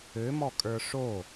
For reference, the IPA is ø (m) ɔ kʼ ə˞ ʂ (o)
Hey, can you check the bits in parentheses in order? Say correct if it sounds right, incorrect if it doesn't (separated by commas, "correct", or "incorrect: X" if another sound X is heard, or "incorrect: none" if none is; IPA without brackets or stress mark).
correct, correct